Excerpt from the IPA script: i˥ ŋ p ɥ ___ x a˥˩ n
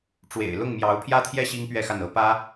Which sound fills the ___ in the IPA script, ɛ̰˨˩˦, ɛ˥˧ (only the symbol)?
ɛ˥˧